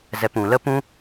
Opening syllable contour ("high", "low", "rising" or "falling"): low